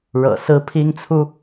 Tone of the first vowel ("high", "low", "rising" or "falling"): low